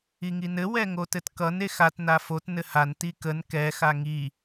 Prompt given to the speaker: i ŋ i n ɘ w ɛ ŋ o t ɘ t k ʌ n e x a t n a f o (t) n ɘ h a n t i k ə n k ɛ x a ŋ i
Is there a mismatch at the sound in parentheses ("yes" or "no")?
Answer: no